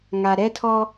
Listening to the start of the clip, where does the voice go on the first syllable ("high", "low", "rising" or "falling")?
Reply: low